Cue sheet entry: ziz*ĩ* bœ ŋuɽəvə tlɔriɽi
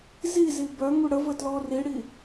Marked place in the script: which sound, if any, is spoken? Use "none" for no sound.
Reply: i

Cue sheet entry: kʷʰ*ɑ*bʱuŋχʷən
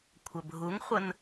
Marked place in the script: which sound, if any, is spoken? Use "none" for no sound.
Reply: ə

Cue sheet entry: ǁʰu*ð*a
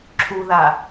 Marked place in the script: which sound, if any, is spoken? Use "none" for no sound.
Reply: ð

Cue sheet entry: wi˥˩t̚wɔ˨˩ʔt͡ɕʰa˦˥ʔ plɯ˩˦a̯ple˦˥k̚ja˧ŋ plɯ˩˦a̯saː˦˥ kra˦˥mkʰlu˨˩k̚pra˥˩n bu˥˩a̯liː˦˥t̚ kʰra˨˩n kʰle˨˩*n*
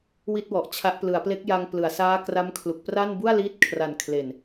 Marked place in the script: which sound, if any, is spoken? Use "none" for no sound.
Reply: n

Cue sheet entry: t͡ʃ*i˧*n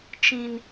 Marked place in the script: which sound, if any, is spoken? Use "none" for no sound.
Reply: ĩ˧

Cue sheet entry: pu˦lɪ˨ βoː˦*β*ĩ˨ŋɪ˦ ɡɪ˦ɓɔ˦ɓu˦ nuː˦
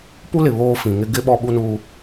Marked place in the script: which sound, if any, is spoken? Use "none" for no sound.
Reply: f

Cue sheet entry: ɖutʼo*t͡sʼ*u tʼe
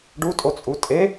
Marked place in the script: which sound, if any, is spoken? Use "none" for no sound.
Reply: t͡sʼ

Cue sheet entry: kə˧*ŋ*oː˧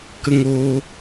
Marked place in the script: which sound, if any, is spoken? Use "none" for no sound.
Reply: ŋ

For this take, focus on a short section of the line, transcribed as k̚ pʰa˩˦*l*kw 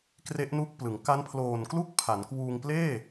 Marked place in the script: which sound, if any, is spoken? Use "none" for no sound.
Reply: n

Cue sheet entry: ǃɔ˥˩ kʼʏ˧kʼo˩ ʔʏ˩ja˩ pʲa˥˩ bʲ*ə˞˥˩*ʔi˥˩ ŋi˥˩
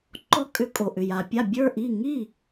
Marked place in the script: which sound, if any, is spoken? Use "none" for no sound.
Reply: ə˞˥˩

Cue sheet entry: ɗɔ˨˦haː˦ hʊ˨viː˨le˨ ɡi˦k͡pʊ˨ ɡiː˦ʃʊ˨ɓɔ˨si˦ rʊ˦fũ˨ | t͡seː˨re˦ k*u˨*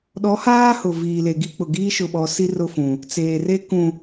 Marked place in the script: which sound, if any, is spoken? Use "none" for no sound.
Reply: ũ˨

